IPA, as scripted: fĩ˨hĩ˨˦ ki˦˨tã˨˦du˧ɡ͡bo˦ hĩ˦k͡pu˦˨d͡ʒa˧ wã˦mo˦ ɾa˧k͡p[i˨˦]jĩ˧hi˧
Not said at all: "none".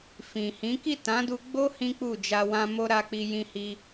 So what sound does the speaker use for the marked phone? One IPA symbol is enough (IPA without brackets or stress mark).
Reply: i˧